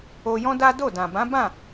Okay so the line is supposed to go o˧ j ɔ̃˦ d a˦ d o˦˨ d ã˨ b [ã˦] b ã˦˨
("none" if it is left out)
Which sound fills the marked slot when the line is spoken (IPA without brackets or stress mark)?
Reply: ã˨˦